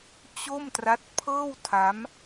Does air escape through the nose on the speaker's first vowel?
no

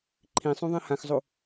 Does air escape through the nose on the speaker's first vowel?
yes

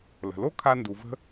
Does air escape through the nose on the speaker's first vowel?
no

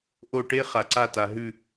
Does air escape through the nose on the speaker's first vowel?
no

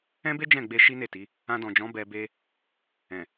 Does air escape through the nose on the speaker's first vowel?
yes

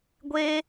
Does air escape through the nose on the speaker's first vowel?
no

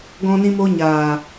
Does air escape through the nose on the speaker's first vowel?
yes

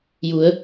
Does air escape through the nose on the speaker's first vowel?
no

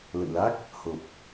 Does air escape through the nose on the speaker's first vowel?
no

